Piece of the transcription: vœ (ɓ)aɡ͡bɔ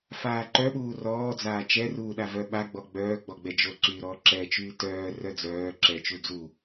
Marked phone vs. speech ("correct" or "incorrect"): correct